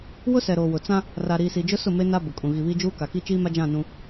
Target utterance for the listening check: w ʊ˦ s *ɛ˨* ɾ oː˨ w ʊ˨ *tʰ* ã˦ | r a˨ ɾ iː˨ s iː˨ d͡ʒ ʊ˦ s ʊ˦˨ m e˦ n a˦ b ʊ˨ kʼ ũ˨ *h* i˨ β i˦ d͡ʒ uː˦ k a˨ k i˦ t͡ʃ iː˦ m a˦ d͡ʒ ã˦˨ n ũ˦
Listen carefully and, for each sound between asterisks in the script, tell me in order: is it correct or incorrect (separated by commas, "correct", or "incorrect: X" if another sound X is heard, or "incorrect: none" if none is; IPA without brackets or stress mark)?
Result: correct, incorrect: t͡s, incorrect: ɣ